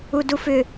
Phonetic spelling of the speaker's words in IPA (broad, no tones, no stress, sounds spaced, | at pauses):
u d u f ʏ